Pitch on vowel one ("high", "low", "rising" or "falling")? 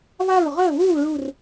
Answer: falling